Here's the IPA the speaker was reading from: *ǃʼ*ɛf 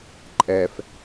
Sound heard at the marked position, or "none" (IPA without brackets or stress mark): ǃʼ